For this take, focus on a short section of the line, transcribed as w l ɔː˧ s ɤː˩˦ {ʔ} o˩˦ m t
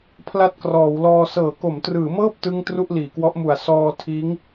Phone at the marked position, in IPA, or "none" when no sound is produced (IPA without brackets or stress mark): k